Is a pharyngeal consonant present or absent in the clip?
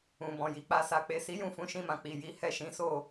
absent